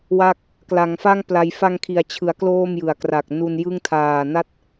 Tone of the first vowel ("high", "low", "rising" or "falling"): falling